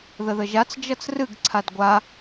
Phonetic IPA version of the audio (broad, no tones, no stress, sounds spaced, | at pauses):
ð ə ð ə ʒ a t͡s d͡ʒ ʌ t͡s r ɨ ɡ ǀʰ a d ɡʷ a